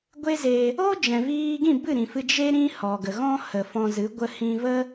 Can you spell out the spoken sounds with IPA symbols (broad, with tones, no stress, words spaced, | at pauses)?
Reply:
ɡʷe˦ze˧ | oː˦d͡ʒɛ̃˨viː˧ɡĩ˦˨ bɨ˦˨ɾĩ˨fɨ˧ d͡ʒe˦ ɾĩ˦hɔ˨ɡə˨ ɣɔ̃˦hə˨fɔ̃˧zɨ˨˦ ɡʷə˧hĩ˧və˦